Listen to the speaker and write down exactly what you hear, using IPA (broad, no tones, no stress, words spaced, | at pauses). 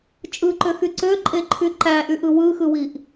t͡ʃʼɯǃøxy ǀøǃʼeǃʰy ǃæʔyʔɯ wɯxɯwiʔ